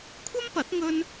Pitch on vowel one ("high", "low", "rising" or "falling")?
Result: high